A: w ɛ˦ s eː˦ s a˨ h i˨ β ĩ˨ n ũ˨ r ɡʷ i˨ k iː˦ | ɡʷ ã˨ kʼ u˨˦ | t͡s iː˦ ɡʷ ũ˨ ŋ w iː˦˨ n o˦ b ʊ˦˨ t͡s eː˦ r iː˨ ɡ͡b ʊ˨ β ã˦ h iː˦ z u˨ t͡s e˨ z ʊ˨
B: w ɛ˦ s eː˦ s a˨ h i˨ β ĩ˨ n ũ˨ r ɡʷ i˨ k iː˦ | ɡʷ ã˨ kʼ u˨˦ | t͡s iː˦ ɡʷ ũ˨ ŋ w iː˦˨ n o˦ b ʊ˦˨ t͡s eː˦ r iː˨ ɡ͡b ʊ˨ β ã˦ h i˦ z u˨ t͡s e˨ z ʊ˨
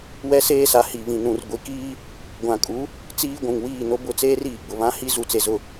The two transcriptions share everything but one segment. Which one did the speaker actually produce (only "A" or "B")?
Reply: B